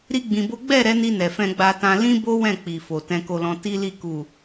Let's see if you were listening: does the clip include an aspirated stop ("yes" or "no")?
no